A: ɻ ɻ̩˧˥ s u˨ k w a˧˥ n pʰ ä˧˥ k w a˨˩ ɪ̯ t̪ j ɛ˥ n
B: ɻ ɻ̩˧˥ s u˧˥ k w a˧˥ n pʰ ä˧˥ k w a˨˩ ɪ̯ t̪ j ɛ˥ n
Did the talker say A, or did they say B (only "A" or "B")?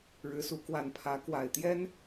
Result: B